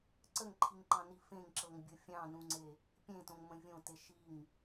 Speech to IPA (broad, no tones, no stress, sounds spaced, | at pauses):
ǀ ə ŋ ǃʰ i ŋ ǃ ɑ̃ n i f ẽ ŋ ǁ ɤ ŋ bʲ ɤ fʲ ɑ̃ n ũ ŋ͡ǀ e | pʲ ẽ t õ ŋ m ə̃ vʲ õ t e ʃ i ŋ